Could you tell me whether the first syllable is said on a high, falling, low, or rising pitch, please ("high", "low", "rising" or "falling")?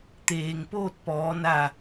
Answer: low